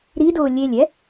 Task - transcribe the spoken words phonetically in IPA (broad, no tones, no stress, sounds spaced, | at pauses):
ɾ i d ʊː lʲ e lʲ ɛ